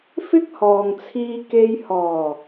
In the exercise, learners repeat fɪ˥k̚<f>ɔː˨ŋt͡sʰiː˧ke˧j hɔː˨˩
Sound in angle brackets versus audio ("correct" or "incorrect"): incorrect